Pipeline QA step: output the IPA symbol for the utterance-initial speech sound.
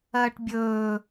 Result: ɐː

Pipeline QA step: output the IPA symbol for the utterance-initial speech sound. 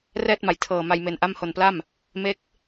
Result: r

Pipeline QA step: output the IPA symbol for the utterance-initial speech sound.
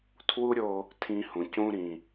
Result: tʰ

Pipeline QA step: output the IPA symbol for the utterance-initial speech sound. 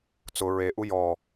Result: t͡s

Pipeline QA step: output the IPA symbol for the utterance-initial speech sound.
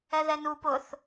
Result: ɛ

